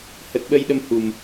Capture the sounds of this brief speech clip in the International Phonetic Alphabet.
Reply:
hə˨˩t̚ɓə˧jɗə˧m hu˨˩m

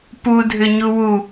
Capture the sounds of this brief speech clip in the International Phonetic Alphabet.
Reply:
pudʱʏɲu wu

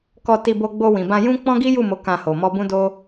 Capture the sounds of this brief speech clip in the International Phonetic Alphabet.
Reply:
kɔ˧ti˧bo˧ɡ͡bo˧ wĩ˨bã˧jũ˦ k͡pɔ̃˦ɡi˦ju˦˨mo˨˦ kã˧ho˨ mɔ˧bũ˦do˦

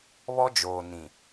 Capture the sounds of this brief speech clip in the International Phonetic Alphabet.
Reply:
βɔ˦d͡ʒoː˨ nĩ˨

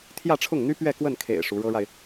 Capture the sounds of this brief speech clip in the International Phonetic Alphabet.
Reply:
t̪ʰjä˥˧ʈ͡ʂʰʊ˥˩ŋn̪y˥ pɥɛ˥˧kwə˥˩n kʰḛ˨˩ɪ̯ ʂu˧˥ɻɤ˥ɻa˨ɪ̯

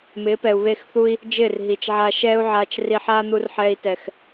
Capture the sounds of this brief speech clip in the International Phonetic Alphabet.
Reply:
mɪː˨˦pɛ˨u̯βe˦˨xθu˦i̯ | d͡ʒɪː˦˨rɦi˨t͡ʃʕaː˧ ʃɛː˦u̯ʕaː˧t͡ʃ ri˧ħaː˦n̪u˧rħɛː˧i̯ tɛ˨x

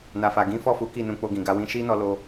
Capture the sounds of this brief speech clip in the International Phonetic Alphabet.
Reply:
na˨fa˨ɡĩ˨˦ fɔ˦˨fu˨˦ ki˦˨nũ˧k͡po˧ɡĩ˨ ɡa˧wĩ˧ʃi˦nɔ˧ lo˦

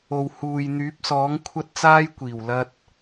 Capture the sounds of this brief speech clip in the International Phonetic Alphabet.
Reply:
o˨w huː˨j n̪yː˨˥p̚sɔː˨˥ŋ kʷʰɐ˥t̚t͡saː˥jkʷiː˨˩w lɐ˥t̚

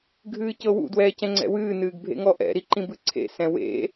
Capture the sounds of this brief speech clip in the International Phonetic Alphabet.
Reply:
ɡʱɨːcɤwṵ dwɛːcɛ̃ŋ͡ǀɛ̰wɨː nɨːɡbʱḛŋɔʔɛ̰ ɾiǃĩbɨǀʰḛ sɛ̃wḛ

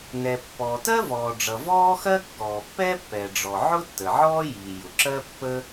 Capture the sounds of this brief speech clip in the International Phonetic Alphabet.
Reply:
nɛ˩ pːɔː˩tɜ˥vɔː˩ɖ͡ʐʌ˩ vɔː˥xɜ˥kːɔː˩ pːɛ˥pːɛ˩ɖ͡ʐɔ˩ ʕʊ˥tːə˩ʕɔː˥ jiː˩ jʊ˩ǁɜ˥pːə˥

